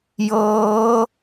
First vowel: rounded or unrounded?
unrounded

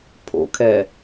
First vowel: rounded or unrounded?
rounded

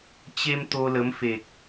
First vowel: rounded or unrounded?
unrounded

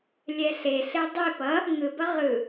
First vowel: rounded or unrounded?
unrounded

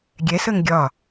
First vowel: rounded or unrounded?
unrounded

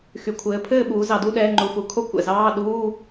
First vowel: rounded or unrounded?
rounded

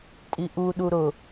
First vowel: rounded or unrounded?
unrounded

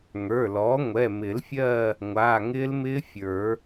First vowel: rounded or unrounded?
unrounded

